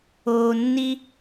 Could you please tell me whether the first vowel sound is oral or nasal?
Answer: oral